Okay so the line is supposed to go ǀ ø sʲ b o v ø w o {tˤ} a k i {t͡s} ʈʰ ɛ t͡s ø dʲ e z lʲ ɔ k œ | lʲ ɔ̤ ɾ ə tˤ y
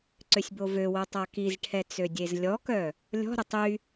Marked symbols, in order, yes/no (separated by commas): yes, no